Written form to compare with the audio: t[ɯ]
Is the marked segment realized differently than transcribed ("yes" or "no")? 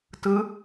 no